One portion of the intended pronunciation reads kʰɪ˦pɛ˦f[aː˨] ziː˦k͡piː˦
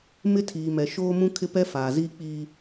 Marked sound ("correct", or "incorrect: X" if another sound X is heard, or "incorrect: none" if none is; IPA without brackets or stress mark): correct